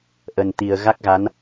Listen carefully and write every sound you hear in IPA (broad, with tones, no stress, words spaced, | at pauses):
ʔə˨˩nt̪i˨˩ə̯ ɣa˦˥k̚ɣa˨˦n